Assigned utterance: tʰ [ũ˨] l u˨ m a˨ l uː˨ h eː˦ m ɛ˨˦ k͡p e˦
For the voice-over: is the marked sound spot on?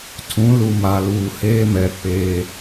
no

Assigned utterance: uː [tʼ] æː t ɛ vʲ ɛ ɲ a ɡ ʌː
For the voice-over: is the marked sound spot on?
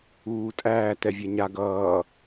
yes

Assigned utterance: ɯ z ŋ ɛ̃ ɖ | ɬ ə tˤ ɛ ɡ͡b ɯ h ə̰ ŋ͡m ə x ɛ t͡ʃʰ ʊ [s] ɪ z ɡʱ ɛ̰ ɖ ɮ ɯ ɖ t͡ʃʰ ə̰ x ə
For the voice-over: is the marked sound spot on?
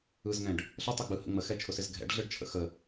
yes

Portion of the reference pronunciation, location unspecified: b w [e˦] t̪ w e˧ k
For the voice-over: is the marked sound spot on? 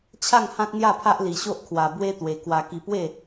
yes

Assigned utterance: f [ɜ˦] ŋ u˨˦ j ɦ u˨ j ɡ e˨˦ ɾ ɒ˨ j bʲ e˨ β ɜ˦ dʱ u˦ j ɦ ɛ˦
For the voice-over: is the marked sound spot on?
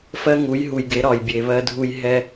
yes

